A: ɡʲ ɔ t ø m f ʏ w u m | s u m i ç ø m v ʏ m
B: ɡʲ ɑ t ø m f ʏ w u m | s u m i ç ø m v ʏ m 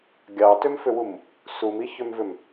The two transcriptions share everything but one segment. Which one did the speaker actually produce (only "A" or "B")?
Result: B